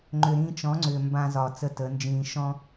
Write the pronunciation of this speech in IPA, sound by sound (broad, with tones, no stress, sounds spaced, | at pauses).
ŋ͡ǃ ʏ˨ ɾ ĩː˧ t͡ʃ ɔ̃˨˦ ŋ͡ǀ ʏː˨ m b ã˧ z ɒ˨ t͡s ə˧ t ə˨˦ n d͡ʒ ĩː˧ ʃ ɔ̃˦